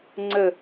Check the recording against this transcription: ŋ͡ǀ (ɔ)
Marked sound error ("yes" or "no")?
yes